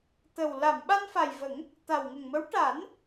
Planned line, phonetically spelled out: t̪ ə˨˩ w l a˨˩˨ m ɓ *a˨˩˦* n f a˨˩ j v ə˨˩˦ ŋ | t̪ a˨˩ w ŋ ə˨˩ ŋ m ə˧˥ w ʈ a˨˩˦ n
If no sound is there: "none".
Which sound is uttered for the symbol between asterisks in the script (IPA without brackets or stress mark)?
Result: a˧